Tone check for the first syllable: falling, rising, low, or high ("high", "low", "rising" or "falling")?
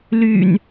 low